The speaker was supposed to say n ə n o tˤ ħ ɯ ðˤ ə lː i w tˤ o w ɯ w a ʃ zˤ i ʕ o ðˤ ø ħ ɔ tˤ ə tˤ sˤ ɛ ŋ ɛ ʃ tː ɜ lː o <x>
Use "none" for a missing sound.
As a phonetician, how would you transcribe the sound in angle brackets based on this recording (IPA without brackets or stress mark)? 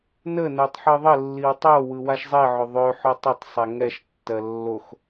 x